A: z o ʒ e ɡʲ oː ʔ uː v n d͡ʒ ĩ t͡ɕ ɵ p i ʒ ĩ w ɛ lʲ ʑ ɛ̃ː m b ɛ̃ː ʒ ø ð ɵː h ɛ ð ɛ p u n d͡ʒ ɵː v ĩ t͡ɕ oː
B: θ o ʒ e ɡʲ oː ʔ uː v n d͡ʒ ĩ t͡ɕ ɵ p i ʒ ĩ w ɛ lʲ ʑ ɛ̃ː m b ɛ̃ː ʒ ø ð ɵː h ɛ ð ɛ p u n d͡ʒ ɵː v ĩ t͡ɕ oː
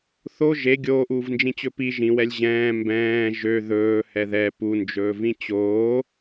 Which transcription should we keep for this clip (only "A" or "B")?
B